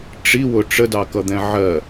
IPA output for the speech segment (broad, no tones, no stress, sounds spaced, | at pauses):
ʈ͡ʂ i w ʊ ʈ͡ʂ ə d ɑ k ʌ d̪ ɛ̃ ʕ ɜ